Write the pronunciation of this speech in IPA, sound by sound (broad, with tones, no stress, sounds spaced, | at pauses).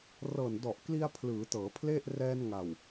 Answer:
r ɤː˨˩ n d ɔ˨˩ ʔ k l i˧ a̯ pʰ l ɯː˩˦ t ɤː˩˦ pʰ l e˥˩ ʔ r ɛː˧ n ŋ a˨˩ w